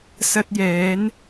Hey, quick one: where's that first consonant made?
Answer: tongue tip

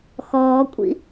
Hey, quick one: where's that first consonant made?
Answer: velum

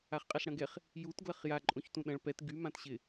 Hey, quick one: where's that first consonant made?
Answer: uvula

